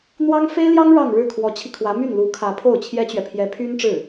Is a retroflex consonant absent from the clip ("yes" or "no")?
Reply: no